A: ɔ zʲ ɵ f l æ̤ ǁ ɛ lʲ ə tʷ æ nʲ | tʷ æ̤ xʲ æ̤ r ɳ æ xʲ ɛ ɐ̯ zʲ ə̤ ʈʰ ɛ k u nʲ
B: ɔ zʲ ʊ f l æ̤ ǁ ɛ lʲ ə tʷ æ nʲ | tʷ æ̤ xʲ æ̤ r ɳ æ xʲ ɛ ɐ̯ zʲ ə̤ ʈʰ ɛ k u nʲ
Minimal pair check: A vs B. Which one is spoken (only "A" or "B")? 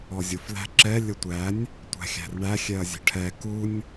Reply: B